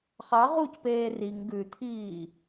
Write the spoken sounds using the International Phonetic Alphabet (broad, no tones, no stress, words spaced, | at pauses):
χɑ ʁucpeː riŋ ɡʉt̪ʰiː